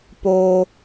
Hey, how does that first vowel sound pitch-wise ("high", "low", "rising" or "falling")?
high